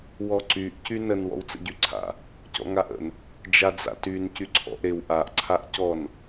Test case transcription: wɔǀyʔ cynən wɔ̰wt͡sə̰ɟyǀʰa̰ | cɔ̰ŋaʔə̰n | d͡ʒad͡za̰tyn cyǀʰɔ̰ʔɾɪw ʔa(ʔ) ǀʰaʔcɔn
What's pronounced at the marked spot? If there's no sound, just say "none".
ʔ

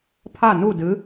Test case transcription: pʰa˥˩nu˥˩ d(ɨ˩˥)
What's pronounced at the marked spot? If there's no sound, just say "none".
ɨ˩˥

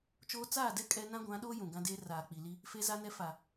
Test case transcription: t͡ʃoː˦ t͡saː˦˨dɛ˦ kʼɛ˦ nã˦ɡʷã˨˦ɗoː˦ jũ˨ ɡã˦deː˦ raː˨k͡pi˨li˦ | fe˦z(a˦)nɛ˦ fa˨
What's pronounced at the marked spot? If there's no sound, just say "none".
a˦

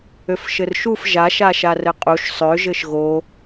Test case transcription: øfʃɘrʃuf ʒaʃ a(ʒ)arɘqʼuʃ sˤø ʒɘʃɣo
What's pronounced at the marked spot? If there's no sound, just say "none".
ʃ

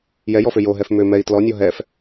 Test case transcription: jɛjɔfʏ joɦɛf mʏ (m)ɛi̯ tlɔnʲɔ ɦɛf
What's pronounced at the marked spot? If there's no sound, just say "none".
m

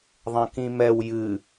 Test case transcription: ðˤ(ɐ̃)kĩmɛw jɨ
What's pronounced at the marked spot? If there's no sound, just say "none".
ɐ̃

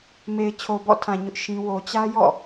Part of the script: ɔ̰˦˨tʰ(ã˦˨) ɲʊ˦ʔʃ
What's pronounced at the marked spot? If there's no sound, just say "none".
ã˨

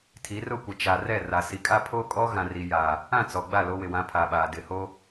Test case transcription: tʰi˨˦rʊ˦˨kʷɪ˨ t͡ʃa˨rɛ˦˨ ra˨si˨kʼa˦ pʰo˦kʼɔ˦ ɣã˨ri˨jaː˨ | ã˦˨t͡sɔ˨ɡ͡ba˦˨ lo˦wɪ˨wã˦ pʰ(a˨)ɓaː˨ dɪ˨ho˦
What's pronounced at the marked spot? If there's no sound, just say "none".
a˨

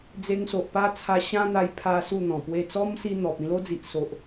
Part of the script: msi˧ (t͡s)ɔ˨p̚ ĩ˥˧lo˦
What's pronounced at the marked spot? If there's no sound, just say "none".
n̪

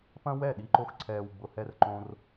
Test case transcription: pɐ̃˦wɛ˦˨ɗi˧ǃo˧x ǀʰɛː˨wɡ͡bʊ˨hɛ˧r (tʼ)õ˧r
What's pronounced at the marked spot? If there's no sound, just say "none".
ǃ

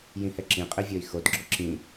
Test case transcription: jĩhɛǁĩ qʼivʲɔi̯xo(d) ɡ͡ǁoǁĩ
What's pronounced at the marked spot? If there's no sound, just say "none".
d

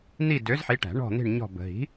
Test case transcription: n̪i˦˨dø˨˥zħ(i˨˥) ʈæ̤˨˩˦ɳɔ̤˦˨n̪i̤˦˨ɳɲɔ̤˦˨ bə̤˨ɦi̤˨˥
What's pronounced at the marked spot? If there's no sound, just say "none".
i˨˥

